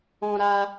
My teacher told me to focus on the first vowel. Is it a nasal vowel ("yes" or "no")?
yes